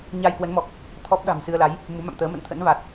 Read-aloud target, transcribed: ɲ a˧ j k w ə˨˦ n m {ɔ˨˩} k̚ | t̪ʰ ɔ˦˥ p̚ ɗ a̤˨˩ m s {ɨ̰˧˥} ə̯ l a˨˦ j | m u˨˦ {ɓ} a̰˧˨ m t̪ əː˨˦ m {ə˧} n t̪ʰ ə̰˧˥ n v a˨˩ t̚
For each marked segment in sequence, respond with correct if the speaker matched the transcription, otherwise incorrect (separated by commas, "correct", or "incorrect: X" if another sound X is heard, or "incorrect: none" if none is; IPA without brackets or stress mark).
correct, incorrect: ɨ˧, incorrect: m, incorrect: ə̰˧˨